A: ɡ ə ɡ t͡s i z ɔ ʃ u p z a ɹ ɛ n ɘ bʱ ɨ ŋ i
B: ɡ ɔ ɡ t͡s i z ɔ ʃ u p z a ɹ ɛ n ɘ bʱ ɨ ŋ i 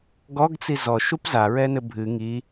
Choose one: B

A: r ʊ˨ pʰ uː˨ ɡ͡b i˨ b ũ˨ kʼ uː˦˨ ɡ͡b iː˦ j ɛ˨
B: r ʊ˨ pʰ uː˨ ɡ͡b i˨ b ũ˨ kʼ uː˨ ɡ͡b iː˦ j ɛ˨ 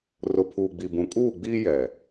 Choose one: A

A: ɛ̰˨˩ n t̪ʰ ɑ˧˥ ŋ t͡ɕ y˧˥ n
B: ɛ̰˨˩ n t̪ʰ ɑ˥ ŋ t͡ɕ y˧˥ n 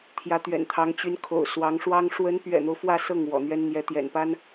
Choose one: A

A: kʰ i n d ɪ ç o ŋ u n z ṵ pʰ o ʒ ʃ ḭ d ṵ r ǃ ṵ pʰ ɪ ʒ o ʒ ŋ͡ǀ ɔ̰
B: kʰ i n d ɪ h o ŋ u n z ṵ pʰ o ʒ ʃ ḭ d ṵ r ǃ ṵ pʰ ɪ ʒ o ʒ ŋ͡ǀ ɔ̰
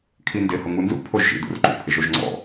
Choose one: B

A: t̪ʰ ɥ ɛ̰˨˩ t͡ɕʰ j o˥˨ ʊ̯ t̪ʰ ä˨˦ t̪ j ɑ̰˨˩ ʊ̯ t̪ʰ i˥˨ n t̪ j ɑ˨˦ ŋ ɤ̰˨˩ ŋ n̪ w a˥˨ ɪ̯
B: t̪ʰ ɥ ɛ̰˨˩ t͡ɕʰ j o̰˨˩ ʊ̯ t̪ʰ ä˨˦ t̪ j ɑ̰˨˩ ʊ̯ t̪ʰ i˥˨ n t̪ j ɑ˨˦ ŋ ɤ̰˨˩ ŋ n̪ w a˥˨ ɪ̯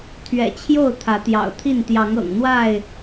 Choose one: A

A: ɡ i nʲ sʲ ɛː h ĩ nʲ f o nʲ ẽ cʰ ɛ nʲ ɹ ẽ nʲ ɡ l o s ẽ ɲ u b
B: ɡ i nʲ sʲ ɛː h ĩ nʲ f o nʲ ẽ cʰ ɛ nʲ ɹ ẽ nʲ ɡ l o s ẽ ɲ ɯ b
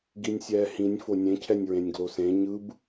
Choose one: B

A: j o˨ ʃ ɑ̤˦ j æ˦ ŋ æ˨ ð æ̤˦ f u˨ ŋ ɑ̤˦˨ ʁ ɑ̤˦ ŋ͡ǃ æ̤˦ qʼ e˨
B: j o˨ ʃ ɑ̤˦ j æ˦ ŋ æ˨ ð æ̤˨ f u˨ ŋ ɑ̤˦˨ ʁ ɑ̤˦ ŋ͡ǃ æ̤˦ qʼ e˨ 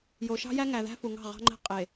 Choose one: A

